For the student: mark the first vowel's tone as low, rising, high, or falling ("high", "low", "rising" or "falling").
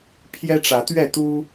high